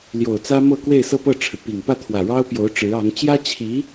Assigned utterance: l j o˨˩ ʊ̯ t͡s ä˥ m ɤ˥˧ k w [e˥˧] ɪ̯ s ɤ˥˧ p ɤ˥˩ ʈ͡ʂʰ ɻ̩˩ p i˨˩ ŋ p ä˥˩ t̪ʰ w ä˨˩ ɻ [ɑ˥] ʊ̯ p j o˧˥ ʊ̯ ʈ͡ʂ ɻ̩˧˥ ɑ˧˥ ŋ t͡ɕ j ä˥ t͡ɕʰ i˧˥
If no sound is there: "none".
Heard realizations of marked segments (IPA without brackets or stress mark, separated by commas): e˥˧, ɑ˥